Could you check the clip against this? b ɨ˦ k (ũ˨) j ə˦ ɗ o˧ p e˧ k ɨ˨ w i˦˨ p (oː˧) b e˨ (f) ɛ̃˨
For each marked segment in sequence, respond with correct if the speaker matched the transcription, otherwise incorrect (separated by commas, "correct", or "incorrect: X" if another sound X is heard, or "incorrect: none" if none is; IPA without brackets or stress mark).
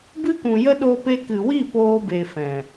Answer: correct, correct, correct